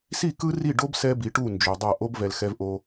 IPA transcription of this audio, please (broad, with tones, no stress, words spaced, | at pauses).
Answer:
si˦˨ kɯ˦ri˦˨ɖo˦b sɛ˦bi˨ʈu˦˨ nd͡ʒo˨dˤʌ˦˨ ʔo˦bvɛ˨lxɛ˦v ʔo˦